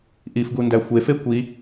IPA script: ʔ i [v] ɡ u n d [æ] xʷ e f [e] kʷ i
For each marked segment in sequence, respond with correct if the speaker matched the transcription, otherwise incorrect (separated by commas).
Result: incorrect, correct, correct